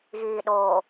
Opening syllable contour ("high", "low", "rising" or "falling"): low